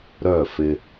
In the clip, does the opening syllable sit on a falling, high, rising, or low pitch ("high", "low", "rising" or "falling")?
falling